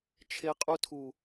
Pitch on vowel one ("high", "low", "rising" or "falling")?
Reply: high